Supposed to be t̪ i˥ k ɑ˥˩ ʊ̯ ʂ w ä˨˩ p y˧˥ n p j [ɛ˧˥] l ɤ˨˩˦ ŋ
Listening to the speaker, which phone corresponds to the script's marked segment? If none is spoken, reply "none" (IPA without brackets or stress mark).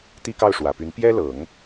ɛ˥